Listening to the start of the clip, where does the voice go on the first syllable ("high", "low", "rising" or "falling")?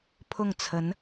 falling